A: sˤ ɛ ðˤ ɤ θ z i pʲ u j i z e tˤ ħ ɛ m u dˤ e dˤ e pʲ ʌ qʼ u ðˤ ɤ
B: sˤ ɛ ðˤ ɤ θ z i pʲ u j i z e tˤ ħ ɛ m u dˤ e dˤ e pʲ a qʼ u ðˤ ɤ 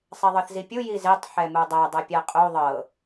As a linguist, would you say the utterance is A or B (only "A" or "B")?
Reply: B